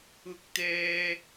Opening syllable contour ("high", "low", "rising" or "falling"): high